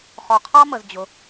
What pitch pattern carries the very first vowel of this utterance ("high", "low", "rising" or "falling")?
low